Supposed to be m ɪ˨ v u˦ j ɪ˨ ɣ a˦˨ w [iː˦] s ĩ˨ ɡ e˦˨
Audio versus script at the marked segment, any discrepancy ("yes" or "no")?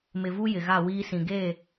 no